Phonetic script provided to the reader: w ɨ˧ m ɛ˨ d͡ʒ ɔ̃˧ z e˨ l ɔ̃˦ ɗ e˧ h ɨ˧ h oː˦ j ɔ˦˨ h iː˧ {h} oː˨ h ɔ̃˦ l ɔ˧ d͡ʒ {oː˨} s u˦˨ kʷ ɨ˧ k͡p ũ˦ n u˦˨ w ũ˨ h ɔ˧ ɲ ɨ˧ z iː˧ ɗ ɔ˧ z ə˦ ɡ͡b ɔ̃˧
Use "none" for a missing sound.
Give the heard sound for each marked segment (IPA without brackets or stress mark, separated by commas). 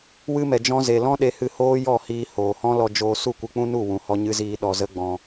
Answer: h, oː˧